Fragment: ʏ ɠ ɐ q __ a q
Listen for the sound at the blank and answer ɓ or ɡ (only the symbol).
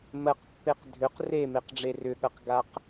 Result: ɡ